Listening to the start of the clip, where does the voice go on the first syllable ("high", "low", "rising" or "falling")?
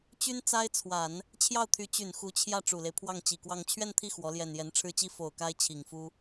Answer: high